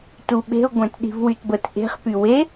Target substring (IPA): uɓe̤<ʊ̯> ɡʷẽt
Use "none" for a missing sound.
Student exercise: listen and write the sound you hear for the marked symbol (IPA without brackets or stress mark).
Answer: ʊ̯